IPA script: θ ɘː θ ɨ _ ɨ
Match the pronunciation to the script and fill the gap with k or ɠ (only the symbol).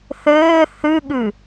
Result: ɠ